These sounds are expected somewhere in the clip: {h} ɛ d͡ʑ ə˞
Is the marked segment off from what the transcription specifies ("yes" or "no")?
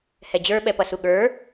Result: no